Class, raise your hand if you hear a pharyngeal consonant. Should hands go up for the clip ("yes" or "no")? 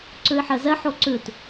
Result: yes